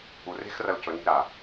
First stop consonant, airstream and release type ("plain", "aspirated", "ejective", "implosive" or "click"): plain